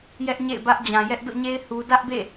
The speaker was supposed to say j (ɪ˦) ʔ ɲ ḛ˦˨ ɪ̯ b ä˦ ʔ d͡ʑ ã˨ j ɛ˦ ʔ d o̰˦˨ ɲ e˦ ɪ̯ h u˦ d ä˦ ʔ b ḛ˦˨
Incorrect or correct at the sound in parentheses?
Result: incorrect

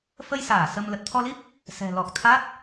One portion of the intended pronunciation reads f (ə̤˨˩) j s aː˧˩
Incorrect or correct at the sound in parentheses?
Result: incorrect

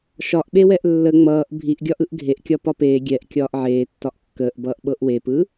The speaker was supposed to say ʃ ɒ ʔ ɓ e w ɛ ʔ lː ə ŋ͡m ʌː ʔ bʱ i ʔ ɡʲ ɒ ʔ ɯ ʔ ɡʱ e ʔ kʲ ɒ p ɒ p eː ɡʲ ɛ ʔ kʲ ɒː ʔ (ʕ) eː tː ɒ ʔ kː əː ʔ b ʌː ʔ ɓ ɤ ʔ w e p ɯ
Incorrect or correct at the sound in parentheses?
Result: correct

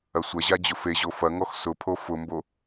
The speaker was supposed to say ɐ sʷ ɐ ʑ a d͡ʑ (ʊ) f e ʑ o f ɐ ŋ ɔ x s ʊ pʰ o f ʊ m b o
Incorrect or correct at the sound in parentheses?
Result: correct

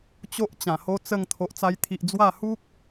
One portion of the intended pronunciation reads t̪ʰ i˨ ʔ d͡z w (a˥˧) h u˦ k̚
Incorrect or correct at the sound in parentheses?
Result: correct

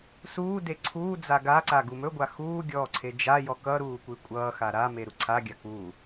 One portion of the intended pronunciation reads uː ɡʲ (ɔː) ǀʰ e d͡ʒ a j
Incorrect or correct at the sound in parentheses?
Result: correct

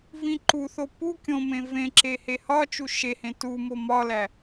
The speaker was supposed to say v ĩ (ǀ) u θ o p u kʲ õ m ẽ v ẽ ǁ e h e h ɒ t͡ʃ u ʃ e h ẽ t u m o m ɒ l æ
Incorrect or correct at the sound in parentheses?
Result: incorrect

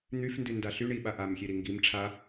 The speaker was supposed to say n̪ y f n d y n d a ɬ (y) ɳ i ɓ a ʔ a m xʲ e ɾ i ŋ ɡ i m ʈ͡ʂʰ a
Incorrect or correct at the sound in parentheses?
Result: correct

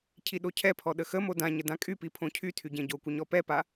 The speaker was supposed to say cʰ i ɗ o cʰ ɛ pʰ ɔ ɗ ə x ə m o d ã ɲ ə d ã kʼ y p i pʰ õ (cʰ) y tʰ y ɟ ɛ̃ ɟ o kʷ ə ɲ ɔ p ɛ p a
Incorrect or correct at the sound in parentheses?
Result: correct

